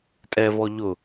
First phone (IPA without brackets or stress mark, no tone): tʼ